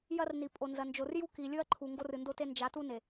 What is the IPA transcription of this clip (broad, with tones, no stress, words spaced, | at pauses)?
jɐ˦rni˨pʼo˨ nzɐ˨nd͡ʒo˨r ju˦ki˨lʲɵ˦ɐ̯ǃʰu˨ ŋɡo˦rɨ˨ndo˦te˦ nd͡ʒa˨˦tu˦ne˨